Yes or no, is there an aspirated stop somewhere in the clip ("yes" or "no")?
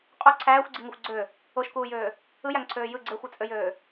yes